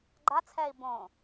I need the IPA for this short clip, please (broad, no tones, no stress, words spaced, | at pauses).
ɡ͡ǃat͡sʰɛːi̯ bõ